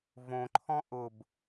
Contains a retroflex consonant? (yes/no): no